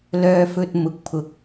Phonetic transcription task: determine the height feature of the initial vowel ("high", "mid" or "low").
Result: mid